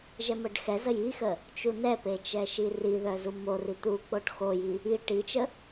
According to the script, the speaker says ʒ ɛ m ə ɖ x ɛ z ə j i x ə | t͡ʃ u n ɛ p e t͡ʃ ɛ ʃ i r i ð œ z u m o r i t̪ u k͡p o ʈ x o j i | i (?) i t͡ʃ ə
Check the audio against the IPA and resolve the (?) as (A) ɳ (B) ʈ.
B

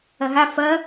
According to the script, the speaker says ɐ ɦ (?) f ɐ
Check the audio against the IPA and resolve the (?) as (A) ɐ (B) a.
B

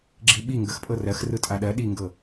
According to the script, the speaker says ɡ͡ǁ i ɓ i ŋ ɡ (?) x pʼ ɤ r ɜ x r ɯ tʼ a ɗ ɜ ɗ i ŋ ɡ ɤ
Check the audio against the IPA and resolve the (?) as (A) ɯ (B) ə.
B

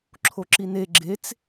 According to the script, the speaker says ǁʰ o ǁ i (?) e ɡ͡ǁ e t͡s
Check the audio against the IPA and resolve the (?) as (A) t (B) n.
B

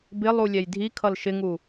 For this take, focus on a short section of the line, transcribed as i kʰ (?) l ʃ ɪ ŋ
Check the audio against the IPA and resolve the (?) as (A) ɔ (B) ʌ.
B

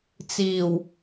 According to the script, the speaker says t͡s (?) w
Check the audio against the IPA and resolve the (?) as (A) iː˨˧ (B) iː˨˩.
B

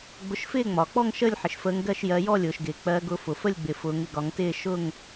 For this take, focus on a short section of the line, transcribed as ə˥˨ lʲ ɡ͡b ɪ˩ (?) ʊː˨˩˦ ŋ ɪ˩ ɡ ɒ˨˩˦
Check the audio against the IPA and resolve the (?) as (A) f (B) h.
A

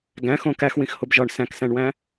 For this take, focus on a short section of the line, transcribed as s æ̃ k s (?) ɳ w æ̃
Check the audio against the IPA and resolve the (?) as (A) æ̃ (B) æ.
A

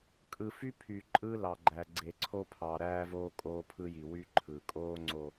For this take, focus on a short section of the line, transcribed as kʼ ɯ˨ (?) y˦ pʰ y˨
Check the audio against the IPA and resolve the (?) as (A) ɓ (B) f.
B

